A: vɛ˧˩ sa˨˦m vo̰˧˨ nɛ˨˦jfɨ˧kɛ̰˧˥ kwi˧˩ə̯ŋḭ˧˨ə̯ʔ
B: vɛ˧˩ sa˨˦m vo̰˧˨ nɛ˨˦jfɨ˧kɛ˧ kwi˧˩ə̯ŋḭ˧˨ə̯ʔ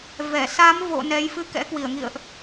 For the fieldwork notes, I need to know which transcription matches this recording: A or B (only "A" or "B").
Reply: A